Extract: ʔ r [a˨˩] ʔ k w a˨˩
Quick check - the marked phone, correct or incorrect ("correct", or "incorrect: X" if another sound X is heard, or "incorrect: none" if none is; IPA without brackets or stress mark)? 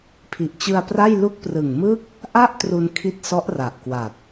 correct